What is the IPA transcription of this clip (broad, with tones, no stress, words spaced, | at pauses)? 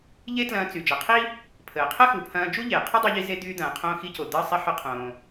ʎe˥tlɐ̃ː˧ t͡sy˩ d͡ʒɐ˩qʰi˥ | pʰəː˩qʰə˥xu˩pʰɐ̃ː˧ d͡ʒu˥ʎe˩qʰʊ˥ dˤo˧ʎi˧ze˧ d̪yː˧d̪ɐ̃ː˩qʰõː˧ xi˧co˩ d̪əː˧sˤe˧ ħʊ˧qʰõː˩